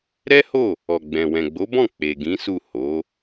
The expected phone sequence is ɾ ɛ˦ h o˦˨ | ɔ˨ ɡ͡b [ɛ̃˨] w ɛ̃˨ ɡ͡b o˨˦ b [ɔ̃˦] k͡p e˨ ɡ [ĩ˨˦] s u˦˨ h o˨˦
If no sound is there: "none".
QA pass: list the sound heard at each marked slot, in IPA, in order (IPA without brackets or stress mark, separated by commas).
ɛ̃˨, ɔ̃˦˨, ĩ˨˦